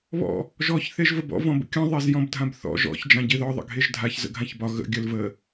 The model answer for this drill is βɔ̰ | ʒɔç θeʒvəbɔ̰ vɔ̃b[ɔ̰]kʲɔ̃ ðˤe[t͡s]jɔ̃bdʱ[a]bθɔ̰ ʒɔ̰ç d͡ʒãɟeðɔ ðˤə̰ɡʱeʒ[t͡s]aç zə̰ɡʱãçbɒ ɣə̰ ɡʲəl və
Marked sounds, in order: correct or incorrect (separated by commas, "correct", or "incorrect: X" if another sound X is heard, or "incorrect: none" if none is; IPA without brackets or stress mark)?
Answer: incorrect: ə̰, incorrect: z, incorrect: ã, incorrect: dʱ